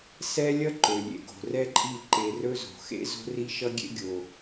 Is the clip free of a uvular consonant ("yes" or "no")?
yes